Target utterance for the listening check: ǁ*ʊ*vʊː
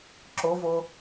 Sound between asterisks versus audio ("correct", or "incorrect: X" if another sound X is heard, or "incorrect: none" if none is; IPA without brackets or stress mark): correct